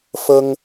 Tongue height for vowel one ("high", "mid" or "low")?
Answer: mid